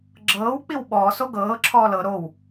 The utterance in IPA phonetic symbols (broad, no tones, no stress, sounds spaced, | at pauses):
ɡ͡ǁ ɤː w k͡p i w ɓ ɔː s o ɡ ɤː ǁʰ ɔː l ɤ ɾ o w